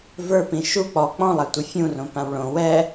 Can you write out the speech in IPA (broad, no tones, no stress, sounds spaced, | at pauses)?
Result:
v ə˞ p ĩ ʃ u k͡p ɔ k͡p ɔ̃ lˠ a tʷ ɯ fʲ ũ r õ p ã w ɭ õ w ɛ